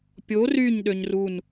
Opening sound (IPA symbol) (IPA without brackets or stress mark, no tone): pʲ